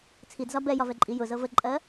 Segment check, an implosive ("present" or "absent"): absent